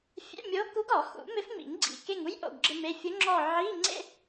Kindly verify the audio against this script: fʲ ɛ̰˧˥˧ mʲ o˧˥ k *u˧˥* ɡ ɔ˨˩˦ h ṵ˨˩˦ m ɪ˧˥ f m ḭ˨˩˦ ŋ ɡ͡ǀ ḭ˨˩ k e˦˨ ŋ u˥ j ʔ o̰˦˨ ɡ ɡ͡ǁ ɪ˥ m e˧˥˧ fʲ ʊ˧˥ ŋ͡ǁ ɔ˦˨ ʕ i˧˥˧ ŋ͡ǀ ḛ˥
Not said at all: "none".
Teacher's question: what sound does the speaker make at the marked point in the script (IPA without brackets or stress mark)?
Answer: u˧˥